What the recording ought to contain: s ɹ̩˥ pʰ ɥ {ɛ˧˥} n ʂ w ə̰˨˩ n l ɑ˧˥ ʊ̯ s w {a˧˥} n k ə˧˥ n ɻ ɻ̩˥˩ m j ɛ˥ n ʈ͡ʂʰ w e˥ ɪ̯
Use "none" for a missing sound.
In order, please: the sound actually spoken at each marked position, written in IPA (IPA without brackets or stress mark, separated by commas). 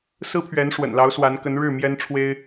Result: ɛ˧˥, a˧˥